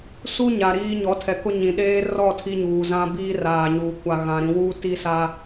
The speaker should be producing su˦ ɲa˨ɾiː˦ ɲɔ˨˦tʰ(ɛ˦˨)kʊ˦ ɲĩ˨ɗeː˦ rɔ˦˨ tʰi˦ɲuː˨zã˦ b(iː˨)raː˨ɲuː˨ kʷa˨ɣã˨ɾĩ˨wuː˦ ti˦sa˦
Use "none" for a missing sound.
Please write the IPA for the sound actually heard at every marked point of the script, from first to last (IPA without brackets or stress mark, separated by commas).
ɛ˨, iː˦